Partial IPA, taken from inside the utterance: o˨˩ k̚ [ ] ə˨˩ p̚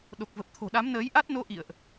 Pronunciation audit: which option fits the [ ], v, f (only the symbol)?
v